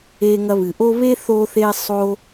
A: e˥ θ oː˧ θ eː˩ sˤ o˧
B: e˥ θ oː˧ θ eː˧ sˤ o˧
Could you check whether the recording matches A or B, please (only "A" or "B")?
B